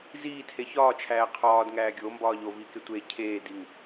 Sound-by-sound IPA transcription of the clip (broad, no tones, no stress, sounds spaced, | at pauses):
z iː tʰ e ç ɒː t͡ʃʰ æː qʰ ɒː d ŋ æː ɡʲ o m b ɒː ʎ o v iː k e tʷ e cʰ eː d i ŋ